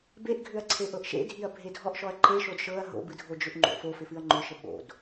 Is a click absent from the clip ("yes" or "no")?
no